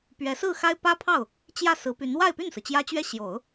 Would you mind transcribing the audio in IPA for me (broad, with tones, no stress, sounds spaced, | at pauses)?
p ɥ ɛ˧˥ s ɹ̩˥˩ x a˥ ɪ̯ p ä˥ pʰ ɑ˥˩ ʊ̯ | t͡ɕ j ä˥˩ s ɹ̩˧˥ p y˧˥ n w a˥˧ ɪ̯ p y˥˩ n s ɹ̩˩ t͡ɕ j ä˥ t͡ɕ ɥ ɛ˥˩ ɕ j o˨˩˦ ʊ̯